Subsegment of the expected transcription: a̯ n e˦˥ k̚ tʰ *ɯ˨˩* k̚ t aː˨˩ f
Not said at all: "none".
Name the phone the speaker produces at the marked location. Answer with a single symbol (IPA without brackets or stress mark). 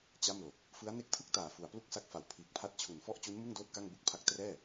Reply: ɯ˥˩